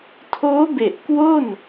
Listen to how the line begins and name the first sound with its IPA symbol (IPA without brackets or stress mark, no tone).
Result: tʰ